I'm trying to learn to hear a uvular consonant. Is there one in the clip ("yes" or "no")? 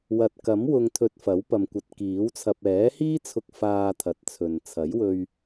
no